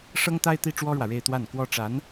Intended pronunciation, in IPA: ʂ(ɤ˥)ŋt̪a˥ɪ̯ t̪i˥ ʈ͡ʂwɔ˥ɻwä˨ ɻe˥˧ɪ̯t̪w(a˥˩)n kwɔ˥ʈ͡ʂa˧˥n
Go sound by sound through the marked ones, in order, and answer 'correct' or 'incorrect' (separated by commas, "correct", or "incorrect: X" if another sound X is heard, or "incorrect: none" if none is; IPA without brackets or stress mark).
correct, correct